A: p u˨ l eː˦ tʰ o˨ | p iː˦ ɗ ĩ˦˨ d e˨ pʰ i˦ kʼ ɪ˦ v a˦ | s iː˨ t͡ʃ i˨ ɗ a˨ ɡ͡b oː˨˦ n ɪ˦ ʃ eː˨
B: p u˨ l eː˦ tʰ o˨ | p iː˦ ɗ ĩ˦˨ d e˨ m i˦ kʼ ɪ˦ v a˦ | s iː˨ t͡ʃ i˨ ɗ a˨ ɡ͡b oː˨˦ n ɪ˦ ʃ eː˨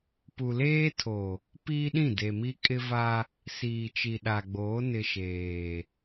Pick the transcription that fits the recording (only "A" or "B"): B